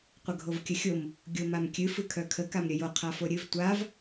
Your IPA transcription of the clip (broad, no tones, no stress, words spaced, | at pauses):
qʷəɡʱovkʲəxʲom | ɡʲomamkʲɨ fɨkʰœkʰə kamɾʲəjo qʰafoɾʲɨv tʷav